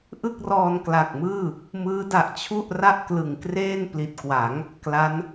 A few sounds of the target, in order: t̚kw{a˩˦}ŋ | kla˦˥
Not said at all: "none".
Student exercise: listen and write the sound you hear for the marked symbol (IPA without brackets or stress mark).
a˩˦